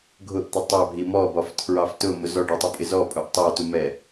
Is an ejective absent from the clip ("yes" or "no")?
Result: no